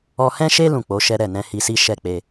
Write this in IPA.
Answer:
ɔ˧hɛ̃˦ʃe˦ lũ˦˨k͡po˨˦ʃɛ˦ɾɛ˦˨ nɛ̃˧hi˧si˦ ʃɛ˦˨k͡pe˧

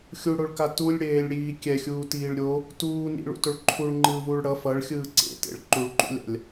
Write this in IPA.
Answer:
xʲuɽoɭka tulʲɽeːlʲɽiː kʲɛxʲuːtiːɭ ɾʲo | tuː nḭɭṵtoɭ ǃʰuɭŋ͡ǃɯːvuːɭ ɽʌ fʌɭxʲɯː ǀḛtḛɭ ǃuɭǃṵlʲa̰lʲ

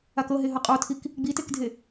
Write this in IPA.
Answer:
akɤ ɦeɦɤqʼotʰik | ɡ͡bitekdʱe

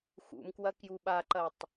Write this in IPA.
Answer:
xṵmkwɐ kjuɓaǃɐtˤ

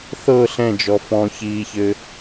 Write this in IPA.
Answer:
θɤ ɬɛ̃d͡ʒɔ fɔ̃çiːçɘ

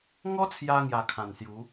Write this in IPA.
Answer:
ŋɔ˦t͡sʰja˧ ŋja˧kʰã˨˩nsju˨˦

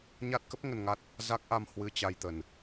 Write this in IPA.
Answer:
ɲa˦˥t̚kə˦˥p̚ ŋə˧nŋa˦˥t̚ | za˦˥k̚ʔa˧mhwɨ˧ t͡ɕa˧jt̪ə˨˩n

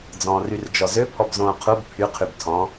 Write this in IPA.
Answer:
d͡zɔ̃ːryrd͡ʒɔzø pʰɔbzõːqʰub pʰyqʰyb tʰɔ̃

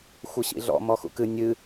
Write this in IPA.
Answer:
xʷɘɕḭɮɔ̰ mɔxṵkɨ nʲɨ

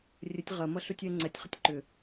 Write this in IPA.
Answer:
rʲətʲ ʁɐmʌ ɬutʲɛŋ͡ǀɛtʲχətʲ ǃʏ

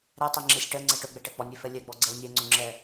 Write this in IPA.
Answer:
ɾɛtˤɛŋ͡ǁesʲ ʈɜŋ͡ǀɛ ʈɵɡ͡bɛʈɛ k͡pɔnʲefɛ lʲɛɡ͡bɔɡ͡ǀɛw nʲɛŋ͡ǀɵŋ͡ǁɛ

